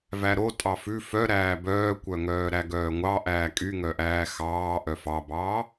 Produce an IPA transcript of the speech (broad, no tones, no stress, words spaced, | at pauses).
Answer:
væɾo tʼɑfʉ fœ ɾæːbœːkʷœŋœː ɾæɡœːŋʷɑ ʔæːkʼyŋœʔæː xɑː ʔœfɑbɑː